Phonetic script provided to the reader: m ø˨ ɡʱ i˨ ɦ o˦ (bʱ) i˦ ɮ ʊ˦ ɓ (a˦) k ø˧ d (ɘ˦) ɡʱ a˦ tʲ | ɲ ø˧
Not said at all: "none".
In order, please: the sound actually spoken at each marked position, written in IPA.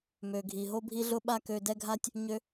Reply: bʱ, a˦, ɛ˦

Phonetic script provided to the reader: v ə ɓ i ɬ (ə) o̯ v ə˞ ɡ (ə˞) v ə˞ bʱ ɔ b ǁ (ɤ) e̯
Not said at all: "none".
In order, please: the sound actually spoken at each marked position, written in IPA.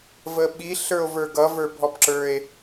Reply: ə˞, ʌ, ə˞

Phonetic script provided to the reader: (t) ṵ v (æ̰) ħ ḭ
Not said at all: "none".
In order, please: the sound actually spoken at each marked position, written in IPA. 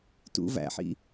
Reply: t, æ̰

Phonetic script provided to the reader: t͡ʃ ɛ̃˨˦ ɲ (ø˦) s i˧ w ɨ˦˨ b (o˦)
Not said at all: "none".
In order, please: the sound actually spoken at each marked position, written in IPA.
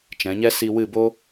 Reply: ɛ˦, o˦

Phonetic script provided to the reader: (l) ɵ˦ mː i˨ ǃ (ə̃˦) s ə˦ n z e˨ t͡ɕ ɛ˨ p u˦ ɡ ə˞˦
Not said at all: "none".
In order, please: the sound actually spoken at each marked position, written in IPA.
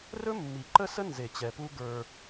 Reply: r, ə˦

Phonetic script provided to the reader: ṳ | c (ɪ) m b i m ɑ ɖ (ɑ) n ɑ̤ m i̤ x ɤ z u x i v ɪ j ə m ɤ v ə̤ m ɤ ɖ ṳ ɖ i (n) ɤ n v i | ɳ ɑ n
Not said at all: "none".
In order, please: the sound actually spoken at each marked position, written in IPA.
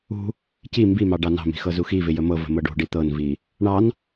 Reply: i, ɑ, t̪

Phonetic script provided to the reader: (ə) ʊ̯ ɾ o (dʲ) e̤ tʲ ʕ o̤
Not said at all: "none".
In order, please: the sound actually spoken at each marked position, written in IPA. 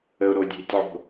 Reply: ə, dʲ

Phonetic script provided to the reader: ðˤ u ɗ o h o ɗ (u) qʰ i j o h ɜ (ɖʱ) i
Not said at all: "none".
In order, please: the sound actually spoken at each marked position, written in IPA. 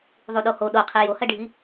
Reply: o, ɖʱ

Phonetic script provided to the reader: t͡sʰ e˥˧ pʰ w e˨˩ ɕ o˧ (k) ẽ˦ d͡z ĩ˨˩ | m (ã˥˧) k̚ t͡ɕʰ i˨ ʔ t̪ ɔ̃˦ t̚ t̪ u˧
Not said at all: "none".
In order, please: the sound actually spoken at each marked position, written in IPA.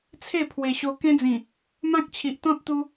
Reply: k, ã˦

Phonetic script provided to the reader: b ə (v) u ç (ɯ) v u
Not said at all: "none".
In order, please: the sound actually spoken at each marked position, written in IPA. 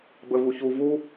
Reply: v, u

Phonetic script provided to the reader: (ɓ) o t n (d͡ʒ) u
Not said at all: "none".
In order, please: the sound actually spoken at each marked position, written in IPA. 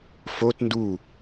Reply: f, d

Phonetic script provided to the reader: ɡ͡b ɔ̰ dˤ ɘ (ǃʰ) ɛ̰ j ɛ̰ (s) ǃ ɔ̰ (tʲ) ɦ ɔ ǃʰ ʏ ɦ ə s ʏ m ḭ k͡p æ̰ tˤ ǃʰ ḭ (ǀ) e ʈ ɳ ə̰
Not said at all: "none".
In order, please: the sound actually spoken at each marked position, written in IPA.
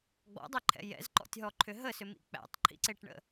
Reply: ǃʰ, z, tʲ, ǀ

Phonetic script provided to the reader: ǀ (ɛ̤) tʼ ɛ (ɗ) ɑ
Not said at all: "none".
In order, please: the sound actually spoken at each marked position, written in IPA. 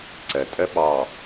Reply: ɛ, ɓ

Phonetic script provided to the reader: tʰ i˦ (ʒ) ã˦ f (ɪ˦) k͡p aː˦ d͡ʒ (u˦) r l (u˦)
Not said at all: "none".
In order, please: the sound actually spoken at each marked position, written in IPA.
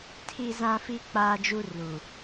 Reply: z, i˦, u˦, u˨

